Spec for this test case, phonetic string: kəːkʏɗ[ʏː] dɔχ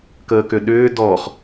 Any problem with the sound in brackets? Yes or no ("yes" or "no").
no